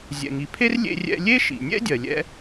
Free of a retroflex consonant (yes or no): yes